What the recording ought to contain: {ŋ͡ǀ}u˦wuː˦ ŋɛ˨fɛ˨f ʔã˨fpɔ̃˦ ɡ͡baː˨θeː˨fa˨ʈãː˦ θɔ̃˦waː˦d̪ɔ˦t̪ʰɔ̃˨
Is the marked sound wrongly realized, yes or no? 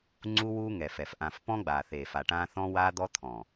no